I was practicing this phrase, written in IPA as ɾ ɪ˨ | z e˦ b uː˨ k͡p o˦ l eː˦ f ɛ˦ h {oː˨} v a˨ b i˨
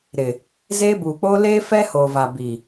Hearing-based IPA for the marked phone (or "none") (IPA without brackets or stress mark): oː˨